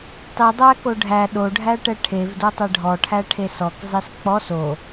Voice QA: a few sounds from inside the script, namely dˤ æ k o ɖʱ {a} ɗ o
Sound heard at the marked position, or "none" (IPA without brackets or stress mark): æ